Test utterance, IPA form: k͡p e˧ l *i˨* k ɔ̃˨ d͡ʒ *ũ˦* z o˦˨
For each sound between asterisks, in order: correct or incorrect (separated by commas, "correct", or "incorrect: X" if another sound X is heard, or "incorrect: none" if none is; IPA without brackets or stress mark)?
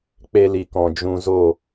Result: correct, incorrect: ũ˧